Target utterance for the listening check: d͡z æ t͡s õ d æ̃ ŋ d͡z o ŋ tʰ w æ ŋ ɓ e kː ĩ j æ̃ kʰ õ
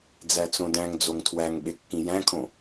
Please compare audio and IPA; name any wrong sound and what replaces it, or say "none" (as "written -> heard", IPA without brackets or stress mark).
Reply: none